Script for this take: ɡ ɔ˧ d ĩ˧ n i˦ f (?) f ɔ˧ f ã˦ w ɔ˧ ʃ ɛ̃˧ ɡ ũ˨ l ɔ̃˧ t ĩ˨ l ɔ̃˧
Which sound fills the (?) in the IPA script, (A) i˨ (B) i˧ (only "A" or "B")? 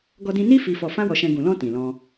B